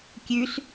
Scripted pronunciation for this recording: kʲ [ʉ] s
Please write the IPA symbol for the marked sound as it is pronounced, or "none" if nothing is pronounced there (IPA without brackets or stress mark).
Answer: ʉ